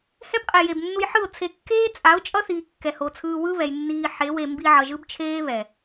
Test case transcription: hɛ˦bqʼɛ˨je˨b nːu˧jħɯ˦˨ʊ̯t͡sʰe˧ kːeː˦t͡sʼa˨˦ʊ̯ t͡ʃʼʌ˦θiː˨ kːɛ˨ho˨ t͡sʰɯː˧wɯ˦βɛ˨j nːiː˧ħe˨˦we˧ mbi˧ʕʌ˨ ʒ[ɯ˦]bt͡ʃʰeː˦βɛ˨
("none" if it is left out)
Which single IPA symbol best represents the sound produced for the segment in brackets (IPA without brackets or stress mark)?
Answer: ɯ˦